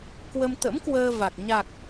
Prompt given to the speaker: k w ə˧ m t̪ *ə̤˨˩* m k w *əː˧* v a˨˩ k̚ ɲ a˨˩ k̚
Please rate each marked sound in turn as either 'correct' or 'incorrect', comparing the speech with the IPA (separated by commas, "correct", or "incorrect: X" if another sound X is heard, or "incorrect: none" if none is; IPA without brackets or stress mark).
incorrect: ə̰˧˥, correct